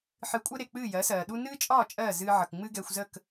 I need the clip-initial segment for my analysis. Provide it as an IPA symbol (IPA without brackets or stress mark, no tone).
ħ